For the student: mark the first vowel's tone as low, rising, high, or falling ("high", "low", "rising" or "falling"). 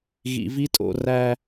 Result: low